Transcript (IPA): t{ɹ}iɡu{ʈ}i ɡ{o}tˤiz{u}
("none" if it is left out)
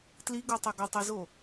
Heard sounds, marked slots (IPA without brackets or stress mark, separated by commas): l, tˤ, o, o